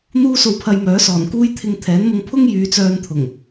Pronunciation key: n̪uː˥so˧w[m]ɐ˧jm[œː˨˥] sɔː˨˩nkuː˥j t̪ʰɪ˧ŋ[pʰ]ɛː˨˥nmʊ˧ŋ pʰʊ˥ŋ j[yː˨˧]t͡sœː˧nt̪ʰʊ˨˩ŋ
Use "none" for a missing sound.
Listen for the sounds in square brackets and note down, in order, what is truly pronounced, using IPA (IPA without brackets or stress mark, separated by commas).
pʰ, œː˨˥, t̪ʰ, yː˨˧